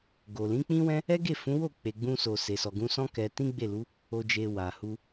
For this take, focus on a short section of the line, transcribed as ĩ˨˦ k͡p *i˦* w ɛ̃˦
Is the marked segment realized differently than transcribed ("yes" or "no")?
yes